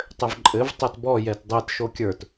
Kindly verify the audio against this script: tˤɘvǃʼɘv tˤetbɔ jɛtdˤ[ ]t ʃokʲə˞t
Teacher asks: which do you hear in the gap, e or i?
e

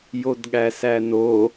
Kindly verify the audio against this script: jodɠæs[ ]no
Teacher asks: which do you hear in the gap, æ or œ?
æ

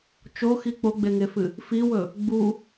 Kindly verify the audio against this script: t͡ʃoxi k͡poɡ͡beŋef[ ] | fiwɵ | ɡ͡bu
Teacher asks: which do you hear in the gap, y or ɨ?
ɨ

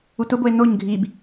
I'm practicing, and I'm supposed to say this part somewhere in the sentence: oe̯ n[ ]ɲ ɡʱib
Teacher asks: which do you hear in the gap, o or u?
o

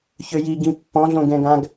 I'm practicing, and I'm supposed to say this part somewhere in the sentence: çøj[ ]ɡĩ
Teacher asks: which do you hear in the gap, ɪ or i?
i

